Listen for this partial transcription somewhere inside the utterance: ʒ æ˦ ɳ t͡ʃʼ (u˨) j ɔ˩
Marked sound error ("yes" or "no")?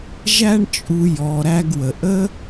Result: no